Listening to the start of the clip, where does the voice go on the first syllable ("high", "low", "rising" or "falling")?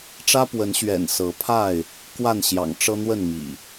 high